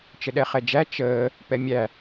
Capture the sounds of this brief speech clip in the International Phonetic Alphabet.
t͡ʃ ə ɗ ɛ χ ɛ d͡ʒ æ t͡ʃ əː | p ɛ mʲ æ

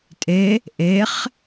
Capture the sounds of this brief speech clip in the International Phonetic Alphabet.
tʼ e | ʔ e χ

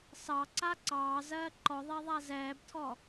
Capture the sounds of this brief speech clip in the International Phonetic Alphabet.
s ɑ ǀ a ǀ ɑː z ɜː ǃ ɔ ðˤ ɛ ðˤ a z ɛː b tʰ ɔ

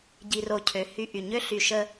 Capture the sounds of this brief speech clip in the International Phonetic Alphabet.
ɟ i˨ r o˨ cʰ ø˨ h y˦ ʔ y˨ ɲ ø˦ ɬ y˨ ʃ ə˦

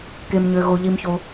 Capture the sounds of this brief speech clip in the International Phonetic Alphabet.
k e˥ m ɲ ø˥ ɣ o˥ ʎ i˥ m ç o˥

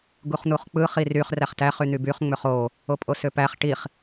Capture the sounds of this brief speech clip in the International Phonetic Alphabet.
ɡ u χ n̪ u χ k͡p ɯ χ i r y χ r æ χ t æ χ y n̪ y b y χ ŋ͡m ø χ o | o pʼ o s ø p æ χ ʈ i χ

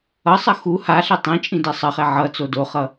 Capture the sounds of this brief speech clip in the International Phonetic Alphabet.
ʌ sˤ ʌ x u h a ɬ e tˤ ĩ t͡ʃʼ ĩ d ɛ sˤ ʌ χ ɛ ʕ ʌ t͡s o d o χ ʌ

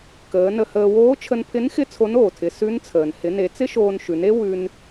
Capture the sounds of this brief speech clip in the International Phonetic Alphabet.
k əː˩˧ n ə˧ h əː˧ w oː˧˥ t͡ʃʰ ə˧ n pʰ ɪ˧˥ n x ɪ˥ t͡sʰ o˧˥ n oː˩ tʰ ɪ˩˧ s ʉ˧˥ n t͡sʰ əː˩ n h ɪ˩˧ n e˩˧ t͡s ɪ˥ ʃ oː˧ n ʃ ʉ˩˧ n e˥ w ʉ˧ n

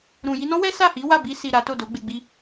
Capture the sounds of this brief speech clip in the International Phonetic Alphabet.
ɾ ũ˨ j i˧ n ɔ̃˦ w ɛ˦ s a˦˨ h i˨˦ w a˦˨ b i˧ s i˨ ɾ a˨˦ t o˦˨ d o˨˦ ɡ͡b e˧ ɡ͡b i˦

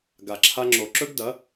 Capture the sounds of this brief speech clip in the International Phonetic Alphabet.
ɡ a˨ ǁʰ a˧ ŋ͡ǁ o˨ ǁ ɵ˦ ɡ d ɐ˨˦

